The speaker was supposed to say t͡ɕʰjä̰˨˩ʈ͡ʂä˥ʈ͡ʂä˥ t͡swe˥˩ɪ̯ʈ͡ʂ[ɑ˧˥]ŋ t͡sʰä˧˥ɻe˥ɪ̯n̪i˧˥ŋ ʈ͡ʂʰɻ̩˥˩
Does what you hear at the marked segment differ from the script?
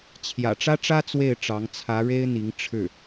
no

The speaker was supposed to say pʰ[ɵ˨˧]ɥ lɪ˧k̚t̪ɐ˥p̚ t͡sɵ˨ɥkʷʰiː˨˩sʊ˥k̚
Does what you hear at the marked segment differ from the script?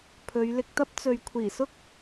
no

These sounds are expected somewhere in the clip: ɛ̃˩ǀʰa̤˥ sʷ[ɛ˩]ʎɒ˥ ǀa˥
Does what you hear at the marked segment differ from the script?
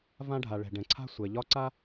no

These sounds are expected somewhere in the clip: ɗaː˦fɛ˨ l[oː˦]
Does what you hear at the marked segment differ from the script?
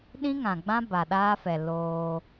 no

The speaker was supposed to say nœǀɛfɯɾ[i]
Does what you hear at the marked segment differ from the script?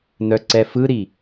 no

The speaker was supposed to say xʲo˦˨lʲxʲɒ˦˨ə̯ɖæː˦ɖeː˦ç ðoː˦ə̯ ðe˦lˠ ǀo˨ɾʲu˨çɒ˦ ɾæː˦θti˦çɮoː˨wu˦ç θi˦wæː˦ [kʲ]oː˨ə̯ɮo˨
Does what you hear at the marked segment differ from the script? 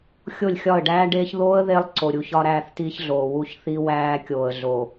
no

